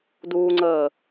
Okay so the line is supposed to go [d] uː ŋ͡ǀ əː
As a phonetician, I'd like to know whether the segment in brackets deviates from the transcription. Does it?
no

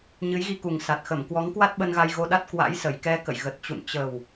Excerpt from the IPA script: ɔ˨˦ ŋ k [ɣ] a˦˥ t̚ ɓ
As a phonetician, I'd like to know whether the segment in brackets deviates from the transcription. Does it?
yes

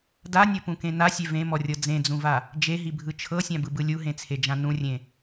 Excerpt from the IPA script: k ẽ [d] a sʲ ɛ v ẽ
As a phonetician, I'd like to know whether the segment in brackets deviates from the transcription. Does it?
yes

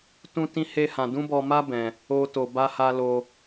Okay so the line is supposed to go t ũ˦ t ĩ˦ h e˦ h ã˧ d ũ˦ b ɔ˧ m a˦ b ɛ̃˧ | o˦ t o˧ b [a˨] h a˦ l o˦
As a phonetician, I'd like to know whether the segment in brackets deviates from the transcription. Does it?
yes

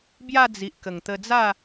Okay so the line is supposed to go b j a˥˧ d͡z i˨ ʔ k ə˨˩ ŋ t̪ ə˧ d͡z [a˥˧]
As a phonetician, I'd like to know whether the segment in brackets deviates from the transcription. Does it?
no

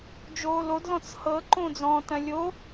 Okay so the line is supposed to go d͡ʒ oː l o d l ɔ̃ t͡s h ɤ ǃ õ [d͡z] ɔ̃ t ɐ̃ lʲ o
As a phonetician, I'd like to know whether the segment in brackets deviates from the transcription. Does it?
no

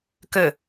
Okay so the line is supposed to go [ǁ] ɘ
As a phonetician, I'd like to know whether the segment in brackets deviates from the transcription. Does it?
yes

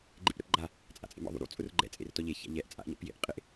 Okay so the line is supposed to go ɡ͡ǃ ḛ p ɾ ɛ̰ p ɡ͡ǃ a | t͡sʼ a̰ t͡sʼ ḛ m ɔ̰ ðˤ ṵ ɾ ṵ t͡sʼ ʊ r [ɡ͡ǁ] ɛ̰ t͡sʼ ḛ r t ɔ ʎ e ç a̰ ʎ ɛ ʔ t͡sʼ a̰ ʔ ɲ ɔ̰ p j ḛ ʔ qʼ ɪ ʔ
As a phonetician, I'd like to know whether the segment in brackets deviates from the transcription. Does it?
yes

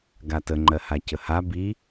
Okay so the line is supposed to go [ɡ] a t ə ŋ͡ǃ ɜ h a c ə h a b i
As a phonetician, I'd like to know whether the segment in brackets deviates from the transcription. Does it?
no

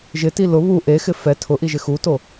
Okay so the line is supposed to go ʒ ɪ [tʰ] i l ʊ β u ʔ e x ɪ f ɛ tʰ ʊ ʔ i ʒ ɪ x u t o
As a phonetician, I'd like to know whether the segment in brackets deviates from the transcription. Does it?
yes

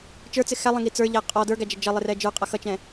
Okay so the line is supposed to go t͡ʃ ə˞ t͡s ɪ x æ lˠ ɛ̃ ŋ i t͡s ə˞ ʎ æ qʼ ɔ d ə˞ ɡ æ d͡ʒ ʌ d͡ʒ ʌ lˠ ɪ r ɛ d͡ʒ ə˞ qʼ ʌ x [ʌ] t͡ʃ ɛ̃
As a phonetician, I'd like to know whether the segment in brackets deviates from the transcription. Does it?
no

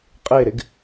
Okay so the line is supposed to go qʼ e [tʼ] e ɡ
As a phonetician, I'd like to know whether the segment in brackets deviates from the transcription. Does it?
yes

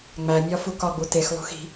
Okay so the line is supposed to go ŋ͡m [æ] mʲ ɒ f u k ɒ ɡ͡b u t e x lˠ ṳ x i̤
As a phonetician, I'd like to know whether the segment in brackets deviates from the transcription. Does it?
no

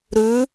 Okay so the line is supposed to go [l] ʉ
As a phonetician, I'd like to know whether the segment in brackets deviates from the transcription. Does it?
yes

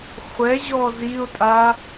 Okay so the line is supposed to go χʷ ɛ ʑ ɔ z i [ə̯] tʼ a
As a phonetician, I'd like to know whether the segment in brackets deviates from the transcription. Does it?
yes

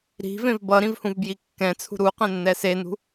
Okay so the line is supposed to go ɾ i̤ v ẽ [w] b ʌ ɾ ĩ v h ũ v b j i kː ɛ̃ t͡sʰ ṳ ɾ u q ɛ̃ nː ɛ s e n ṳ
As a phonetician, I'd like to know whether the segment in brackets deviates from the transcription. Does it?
yes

